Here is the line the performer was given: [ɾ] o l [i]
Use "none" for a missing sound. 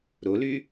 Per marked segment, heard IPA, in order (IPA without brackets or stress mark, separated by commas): ɾ, y